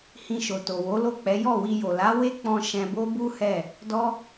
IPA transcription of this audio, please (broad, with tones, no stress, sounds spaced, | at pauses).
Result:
h ĩ˧ ʃ o˨ t o˨ w o˨˦ l o˦˨ k͡p ɛ˨˦ j ɔ˦˨ w i˧ j o˨ l a˨˦ w e˦ k͡p ɔ̃˧ ʃ ɛ̃˧ b o˦ b u˦ h ɛ˦˨ | d ɔ˦